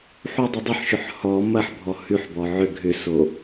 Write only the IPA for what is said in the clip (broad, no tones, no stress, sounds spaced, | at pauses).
ħ u dˤ ʏ dˤ ʏ ħ ʃ ʏ ħ h ɔ m ɐ ħ bʱ ɔ h ʉ ħ b ɔ ʕ ʏ ɡʱ ʏ s o